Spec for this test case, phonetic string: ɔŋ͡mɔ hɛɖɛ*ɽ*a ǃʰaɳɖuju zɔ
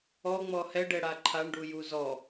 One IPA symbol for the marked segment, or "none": ɽ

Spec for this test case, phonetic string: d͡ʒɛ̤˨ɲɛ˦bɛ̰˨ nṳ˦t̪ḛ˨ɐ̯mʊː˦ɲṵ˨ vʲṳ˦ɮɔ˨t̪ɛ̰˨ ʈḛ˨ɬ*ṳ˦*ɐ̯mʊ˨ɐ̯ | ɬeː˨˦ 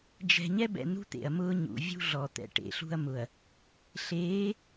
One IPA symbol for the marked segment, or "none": ṳ˦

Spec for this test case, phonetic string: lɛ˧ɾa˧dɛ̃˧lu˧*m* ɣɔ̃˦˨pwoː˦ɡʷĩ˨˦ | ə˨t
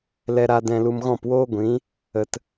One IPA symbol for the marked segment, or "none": m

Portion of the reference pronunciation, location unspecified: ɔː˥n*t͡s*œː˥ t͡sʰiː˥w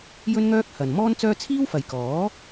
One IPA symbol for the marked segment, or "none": t͡s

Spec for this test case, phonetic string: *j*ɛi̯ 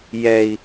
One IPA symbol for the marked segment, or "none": j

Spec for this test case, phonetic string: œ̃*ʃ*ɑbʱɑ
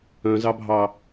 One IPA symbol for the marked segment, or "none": z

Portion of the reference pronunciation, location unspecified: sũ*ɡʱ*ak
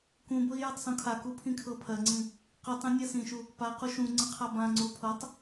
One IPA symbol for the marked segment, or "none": kʰ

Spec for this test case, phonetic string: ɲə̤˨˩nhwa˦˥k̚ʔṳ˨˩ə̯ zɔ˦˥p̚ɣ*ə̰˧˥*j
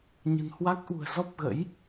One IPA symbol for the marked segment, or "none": ə̰˧˥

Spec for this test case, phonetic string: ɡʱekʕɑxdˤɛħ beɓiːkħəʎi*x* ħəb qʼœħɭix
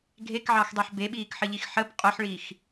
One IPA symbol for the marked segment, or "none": x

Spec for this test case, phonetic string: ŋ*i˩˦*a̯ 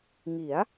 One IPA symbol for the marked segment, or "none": i˩˦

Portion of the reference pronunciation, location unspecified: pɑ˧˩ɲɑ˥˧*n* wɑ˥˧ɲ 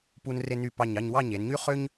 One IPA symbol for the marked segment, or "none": ɲ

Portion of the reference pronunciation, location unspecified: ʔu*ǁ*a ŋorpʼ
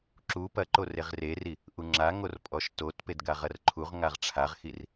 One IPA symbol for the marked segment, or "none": ŋ͡ǁ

